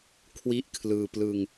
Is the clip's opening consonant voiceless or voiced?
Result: voiceless